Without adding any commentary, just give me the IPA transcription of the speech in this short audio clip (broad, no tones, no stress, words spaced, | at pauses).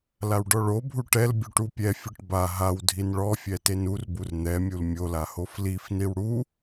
lawɖɔɭobʱu ʈɛlbʲu ʈupʲɛfʲɯʈ ba ɦaw dʱinɭɔfʲɛ tenurbur n̪ɛmʲul mʲola hoflifniw ɽu